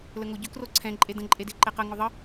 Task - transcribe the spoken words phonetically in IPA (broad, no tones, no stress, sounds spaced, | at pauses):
l ə ŋ o ɟ ʏ k r o ǀʰ ɛ̃ ǃʼ e d ə̃ ǃʼ e d e ǃ e q ə ŋ o ðˤ ə